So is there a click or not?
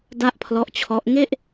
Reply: no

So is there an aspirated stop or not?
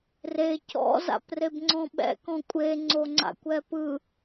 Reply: no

